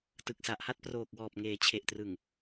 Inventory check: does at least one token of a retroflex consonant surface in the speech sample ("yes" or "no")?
no